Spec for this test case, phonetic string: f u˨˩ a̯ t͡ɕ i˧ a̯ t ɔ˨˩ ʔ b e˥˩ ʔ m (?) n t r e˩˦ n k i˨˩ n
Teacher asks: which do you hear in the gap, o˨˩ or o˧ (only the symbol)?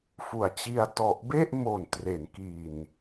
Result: o˨˩